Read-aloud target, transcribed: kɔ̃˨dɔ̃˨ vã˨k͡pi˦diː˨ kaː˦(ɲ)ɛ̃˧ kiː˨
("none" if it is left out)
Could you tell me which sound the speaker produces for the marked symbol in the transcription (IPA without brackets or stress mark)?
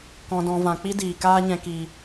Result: ɲ